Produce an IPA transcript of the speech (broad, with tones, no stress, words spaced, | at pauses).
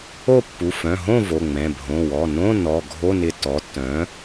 o˥˨pːu˩˧˩ fœ̃˩˧˩ɦõ˥˨ vo˩˧˩ŋ͡mɛ̃˩˧˩ bʱõ˩˧˩wɔ˩˧˩nõ˧˥˧ nɔ˩˧˩ɡʱo˧˥˧ nɪ˧˩ tːɔ˩˥tːœ̃˩˥